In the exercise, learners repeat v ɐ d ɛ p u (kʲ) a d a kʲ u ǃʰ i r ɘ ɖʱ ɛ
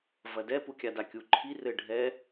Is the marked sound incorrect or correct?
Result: correct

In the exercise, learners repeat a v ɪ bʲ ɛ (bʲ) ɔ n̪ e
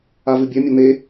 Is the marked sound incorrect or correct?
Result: incorrect: mʲ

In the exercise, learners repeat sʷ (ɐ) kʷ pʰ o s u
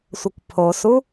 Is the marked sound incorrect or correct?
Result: correct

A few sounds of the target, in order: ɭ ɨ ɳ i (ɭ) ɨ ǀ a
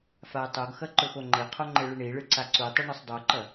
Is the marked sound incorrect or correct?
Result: correct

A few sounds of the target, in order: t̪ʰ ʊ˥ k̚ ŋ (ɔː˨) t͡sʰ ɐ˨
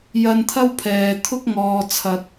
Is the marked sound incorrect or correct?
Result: correct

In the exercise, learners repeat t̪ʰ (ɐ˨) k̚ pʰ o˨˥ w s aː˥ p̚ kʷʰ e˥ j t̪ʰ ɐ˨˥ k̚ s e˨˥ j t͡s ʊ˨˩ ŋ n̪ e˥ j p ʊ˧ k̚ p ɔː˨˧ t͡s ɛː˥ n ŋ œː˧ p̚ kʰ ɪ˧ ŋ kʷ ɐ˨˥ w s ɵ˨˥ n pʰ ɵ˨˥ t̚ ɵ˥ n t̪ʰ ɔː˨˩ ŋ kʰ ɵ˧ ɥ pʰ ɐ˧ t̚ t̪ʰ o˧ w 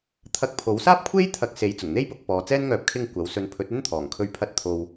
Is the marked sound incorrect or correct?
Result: incorrect: ɐ˧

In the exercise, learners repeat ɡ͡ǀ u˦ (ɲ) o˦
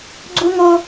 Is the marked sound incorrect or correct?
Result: incorrect: ŋ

